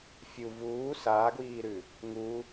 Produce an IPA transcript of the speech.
fʲ u v uː s aː ɡ w iː ɾ ʉ | ŋ u

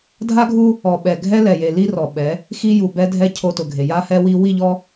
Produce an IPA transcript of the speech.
dʱ a˦ ɡʱ u˦ | ɔ˨ ɓ ɛ˨ ɡʱ ɛ˦ l ɛ˨ j e˨ l i˦ r ɔ˨ ɓ ɛ˨˦ | x i˦ j u˨ b ɛ˦ dʱ ɛ˦ cʰ o˦ t ʊ˨ ɡʱ e˨ j a˦ h ɛ˦ w i˦ w i˦˨ ʎ ɔ˦

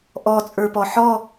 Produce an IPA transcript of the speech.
ʔ ɔ t͡sʼ ə˞ p ɔ ħ ɔ

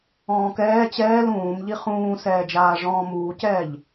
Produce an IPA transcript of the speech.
ɔ̃ː k ɛː t͡ɕ ɛː l ũː m ʎ i χ ũː s ɛː d͡ʒ aː ʐ ɔ̃ː m uː c ɛː ʎ

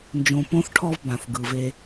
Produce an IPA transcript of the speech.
n d͡ʒ õ˧ p õ˦ θ ʈʰ ɔ˦ v b ã˨ θ ɡ ɯ˨ v e˧

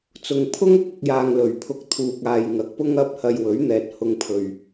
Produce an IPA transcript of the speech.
t͡s ʊ˨ ŋ pʰ ʊ˥ ŋ ʊ˥ k̚ ʊ˨ k̚ j aː˨ ŋ l ɵ˨˩ ɥ pʰ ʊ˨ k̚ t̪ʰ uː˨ k̚ aː˨ j ŋ ɐ˨ k̚ p ʊ˥ ŋ ɐ˧ p̚ h ɐ˨ j w ɵ˨˥ ɥ n̪ ɛː˨ t̚ h ʊ˨ ŋ pʰ ɵ˨ ɥ

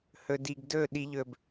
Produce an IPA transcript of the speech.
h ɵ˨ d i˨ ɡ d ɵ˦˨ ɗ i˧ ʎ ɵ˨ b

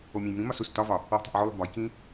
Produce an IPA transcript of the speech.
o mʲ æ̃ j m ĩ m ɒ s u s t ɒ v ɒ | w ṳ tˤ ṳ ʔ ʕ o lˠ ṳ b ɒ j k ĩ

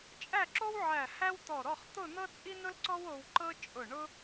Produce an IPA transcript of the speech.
t͡ʃʼ æ˥˧ ǁ o˥ w ʕ æ˧˩ h æ˥ w t̪ ɔ˧˩ ɾ ɔ˥˧ χ t̪ ʊ˥˧ n̪ ɤ˥ t͡sʼ i˥ n ʊ˥ l ǀ ɔ˥ w o˧ w ǃ ɤ˥ t͡ʃʼ ʊ˧˩ ɳ ʊ˥

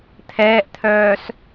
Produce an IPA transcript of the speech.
t̪ʰ ɛː ʔ t̪ʰ œː s

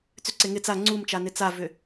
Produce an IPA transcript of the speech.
t͡s ʏ ǀ e ŋ ɪ t͡s a ŋ͡ǀ u m t͡ʃ a n ɪ t͡s a v ʏ

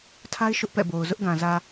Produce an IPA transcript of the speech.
tʰ a˦ ɪ̯ ʃ ʊ˦ ʔ p ɛ̰˦˨ b o˨ ʊ̯ z ʊ˦ ʔ ɡ ã˨ z ä˨

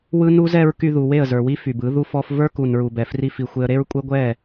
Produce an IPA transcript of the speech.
w ɯ˦ n u˦ z ɛ˦ ɹ k y˧ ð u˨ w e˦˨ ə̯ z ə˞˨ w i˦ f y˨ b ɯ˨˦ ð u˧ f ɔ˧ f v ə˞˦ k u˨ n ɹ u˨ b ɛ˨ f r i˧ f i˨ xʷ e˧ ə̯ ɾ e˦ ɹ kʷʼ e˦ ɡʷ ɛ˦˨

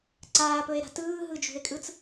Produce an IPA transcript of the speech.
ǀ aː p ɵ e̯ ɾ a̤ t ɯː ɦ ɯ d͡ʒ ṳ e̯ kʼ ɯ t͡s

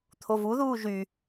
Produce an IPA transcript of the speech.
t̪ʰ o v u ð uː ʒ y

